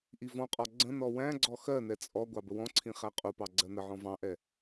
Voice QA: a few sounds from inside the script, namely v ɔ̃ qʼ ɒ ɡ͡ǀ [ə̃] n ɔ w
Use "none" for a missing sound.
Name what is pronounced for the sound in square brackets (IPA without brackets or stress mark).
ə̃